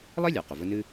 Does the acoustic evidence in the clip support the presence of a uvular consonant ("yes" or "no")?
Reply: yes